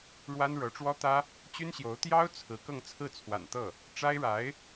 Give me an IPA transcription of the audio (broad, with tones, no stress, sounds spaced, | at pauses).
ɻ w a˥ n ɻ ɤ˧˥ ʈ͡ʂ w ɔ˥ t̪ ä˥ | t͡ɕ y˥ n ɕ j o˧˥ ʊ̯ t̪ j ɑ˥ ʊ̯ t͡sʰ ɹ̩˧˥ k ɤ˥˧ ŋ t͡sʰ ɹ̩˥˩ t͡sʰ w a̰˨˩ n t̪ ɤ˥˩ | ʈ͡ʂ a˥ ɪ̯ ɻ a˧˥ ɪ̯